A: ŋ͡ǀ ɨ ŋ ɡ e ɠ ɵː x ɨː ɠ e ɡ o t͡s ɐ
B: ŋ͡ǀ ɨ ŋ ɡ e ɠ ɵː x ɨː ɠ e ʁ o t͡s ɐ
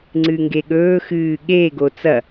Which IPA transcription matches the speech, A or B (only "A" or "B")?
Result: A